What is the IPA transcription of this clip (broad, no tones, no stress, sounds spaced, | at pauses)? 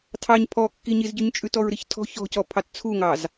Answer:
tʰ ɑ ɲ pʰ ɔ kː i ɲ i z ɟ ʉ ɲ t͡ʃʼ ʉ t ɔ ɹ ɾ i ç tʰ ɔ̤ ç ɔ̤ c ɔ pʰ ɑ t t͡sʰ u ŋ ɑ z